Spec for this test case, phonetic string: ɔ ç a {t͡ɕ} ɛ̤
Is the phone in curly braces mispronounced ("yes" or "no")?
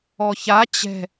no